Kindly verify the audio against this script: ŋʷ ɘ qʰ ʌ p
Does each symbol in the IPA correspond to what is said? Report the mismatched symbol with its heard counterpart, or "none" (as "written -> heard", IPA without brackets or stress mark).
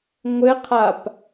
ʌ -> a